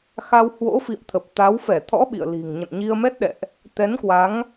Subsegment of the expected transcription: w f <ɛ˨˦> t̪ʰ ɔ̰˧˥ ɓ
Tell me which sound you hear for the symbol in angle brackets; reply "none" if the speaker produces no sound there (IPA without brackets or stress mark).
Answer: ɛ˧˩